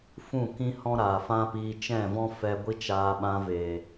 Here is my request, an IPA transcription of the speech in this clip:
f ũ˦˨ k ĩ˦ h ɔ̃˦ ɾ aː˨ f ã˦ p iː˧ t͡ʃ ɛ̃˦˨ v ɔ̃˦ f ɛ˧ ɡʷ i˦ t͡ʃ aː˧ ɓ ã˧ v eː˨

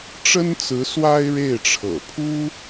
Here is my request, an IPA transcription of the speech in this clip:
ʈ͡ʂ ə˥ n t͡s ɹ̩˧˥ s w a˥ ɪ̯ ɻ e˥˩ ɪ̯ ʈ͡ʂʰ ɤ̰˨˩ pʰ u˥

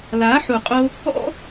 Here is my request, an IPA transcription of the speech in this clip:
l a˨˦ ħ u˨ qʼ o˧ | ɔ̰˦

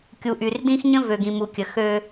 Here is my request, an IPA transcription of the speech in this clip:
kʲ u˨ ʔ y˨ r d ĩ˦ x ɲ ə̃˦ v ø˨ ɡ ĩ˨ m u˨ kʲ ə˨ x øː˦

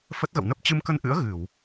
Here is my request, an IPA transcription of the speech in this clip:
f ə˦˥ t̚ ɣ ə̰˧˨ w n ə˦˥ p̚ t͡ɕ ɨ˧ m k ə˧ n ʔ ɨ̰˧˥ ə̯ ɣ ɨ˧˩˨ w

